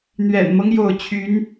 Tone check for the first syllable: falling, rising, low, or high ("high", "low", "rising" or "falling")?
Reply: low